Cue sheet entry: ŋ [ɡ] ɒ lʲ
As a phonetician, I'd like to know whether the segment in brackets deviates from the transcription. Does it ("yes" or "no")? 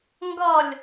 no